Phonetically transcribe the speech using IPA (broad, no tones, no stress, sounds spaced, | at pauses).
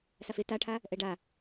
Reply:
s a f e t a ʈʰ a | ʔ ɛ ɖ a